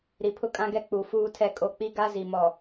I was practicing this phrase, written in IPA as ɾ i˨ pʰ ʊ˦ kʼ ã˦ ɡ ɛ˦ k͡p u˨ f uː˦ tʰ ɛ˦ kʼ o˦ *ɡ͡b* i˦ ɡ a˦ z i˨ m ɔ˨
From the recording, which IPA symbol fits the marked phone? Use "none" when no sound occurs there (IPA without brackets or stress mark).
k͡p